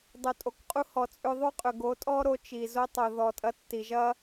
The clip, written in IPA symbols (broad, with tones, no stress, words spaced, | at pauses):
dˤo˨tʼo˨kqʼu˧ hɔ˨t͡sʼʏ˧ ðˤo˦qʼʏ˨ɡo˨˦tʼɔ˦ ɾo˧t͡ʃi˨ zo˧tˤo˨ðɔ˨tʼɐ˧ tːi˨ʒɐ˦